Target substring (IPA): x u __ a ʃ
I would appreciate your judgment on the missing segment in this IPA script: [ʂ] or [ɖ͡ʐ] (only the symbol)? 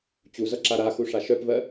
ʂ